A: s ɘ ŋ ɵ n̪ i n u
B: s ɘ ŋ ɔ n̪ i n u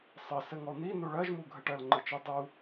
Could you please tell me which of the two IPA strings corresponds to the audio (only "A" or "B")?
B